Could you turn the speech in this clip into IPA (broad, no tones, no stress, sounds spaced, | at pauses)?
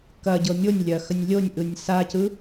k ɐ ɟ ɤ mʲ o nʲ lʲ ɐ x ə nʲ lʲ o nʲ ʔ ɯ nʲ s a c ɯ